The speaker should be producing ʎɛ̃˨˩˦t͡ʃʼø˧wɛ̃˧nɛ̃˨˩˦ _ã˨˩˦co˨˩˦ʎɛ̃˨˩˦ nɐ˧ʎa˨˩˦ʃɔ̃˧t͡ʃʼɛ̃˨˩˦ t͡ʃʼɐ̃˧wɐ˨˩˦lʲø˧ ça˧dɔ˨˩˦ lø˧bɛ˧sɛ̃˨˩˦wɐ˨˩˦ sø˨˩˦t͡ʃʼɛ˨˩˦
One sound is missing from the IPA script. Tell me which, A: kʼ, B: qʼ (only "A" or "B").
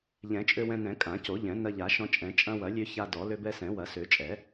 A